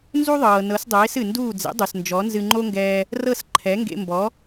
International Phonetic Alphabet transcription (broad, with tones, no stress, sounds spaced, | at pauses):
n z u˥ ðˤ ɤː˩ n ɤ˩˥ s dˤ eː˩˥ s ɨ˩ n d uː˥˩ d͡z ḛ˩˥ dˤ u˩ s n d͡ʒ ɔ˩˥ n z ɨ˧ ŋ͡ǃ o˥ ŋ ɡ ɛː˧ | r ɤ˥˩ s ǃʰ ɛ˩˥ ŋ ɡ ḛ˧ m b ɔ˩˥